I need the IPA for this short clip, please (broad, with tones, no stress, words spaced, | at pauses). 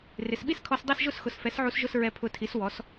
rɪ˩˥s ɓi˥˧skʰɔ˧s dˤi˥˧sʒʊ˥˧sxʊ˩˥s fɛ˩˥sʕu˧s ʒʊ˥˧sɹɛ˧ pʰʊ˧tʰi˩˥s wɔ˩˥s